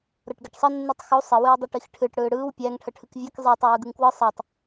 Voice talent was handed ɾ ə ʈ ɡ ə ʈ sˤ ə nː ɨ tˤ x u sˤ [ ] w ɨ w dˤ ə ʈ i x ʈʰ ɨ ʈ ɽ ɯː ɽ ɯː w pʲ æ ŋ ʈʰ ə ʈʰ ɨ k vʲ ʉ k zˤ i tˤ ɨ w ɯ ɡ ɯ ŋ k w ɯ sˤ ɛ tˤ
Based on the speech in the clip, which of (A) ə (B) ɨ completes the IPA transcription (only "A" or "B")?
A